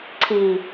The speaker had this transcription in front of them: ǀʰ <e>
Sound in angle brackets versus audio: incorrect: i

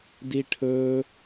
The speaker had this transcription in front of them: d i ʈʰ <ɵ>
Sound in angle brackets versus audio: correct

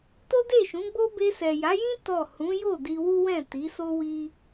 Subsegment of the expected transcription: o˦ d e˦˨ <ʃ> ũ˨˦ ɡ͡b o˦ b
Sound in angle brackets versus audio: correct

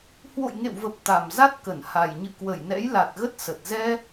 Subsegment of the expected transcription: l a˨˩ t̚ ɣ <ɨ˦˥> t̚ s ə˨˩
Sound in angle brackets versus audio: incorrect: ə˦˥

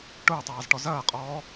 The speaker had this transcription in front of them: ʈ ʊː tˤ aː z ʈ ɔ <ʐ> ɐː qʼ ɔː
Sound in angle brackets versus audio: incorrect: z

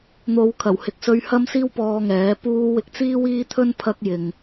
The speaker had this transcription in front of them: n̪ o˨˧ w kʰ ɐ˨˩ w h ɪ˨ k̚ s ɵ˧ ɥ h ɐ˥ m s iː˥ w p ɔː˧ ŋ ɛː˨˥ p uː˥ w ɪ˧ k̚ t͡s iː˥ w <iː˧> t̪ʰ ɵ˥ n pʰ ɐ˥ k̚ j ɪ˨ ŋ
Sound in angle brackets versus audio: incorrect: iː˥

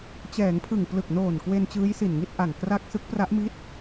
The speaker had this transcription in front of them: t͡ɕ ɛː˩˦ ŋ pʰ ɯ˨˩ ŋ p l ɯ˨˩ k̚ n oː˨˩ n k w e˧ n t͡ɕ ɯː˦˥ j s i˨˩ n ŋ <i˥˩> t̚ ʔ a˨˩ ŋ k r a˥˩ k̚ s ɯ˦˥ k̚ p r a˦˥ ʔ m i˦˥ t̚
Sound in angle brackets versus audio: correct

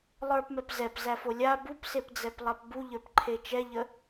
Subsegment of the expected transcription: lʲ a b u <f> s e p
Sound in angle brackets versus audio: incorrect: p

